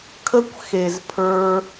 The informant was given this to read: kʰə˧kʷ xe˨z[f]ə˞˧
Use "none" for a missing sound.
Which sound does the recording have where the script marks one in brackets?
pʰ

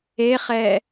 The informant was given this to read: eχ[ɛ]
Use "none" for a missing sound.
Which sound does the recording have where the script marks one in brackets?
ɛ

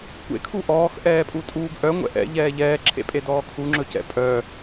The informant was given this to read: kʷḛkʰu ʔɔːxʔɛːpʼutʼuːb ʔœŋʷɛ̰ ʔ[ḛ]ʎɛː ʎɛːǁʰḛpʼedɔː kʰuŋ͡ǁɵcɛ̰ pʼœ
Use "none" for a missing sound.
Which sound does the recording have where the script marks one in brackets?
ɛ̰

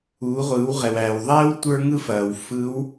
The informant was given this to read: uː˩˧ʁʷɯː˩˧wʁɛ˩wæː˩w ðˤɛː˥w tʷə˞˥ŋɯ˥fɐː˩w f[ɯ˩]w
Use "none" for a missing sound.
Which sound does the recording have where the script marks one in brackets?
ɯ˧˥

